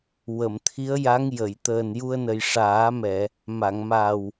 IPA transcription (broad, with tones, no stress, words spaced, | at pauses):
wə˨˩˨mt̪ʰi˧˥ə̯ja˧˥ŋ jə˨˩˨j t̪əː˨˩nju˧ə̯nə˨˩j ʂaː˨˩˦mɛ˨˩˨ | ma˨˩˨ŋma˨˩w